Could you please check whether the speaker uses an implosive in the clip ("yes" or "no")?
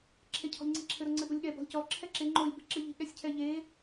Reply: yes